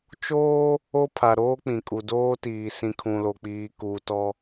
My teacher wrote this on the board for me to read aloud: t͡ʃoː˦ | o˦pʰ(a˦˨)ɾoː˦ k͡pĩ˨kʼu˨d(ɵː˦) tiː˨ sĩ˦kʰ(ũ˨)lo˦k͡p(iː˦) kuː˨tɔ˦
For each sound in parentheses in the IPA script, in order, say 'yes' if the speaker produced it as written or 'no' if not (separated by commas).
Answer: no, no, no, yes